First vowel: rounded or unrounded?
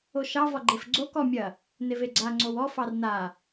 rounded